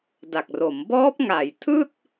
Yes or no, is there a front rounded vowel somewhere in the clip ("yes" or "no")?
no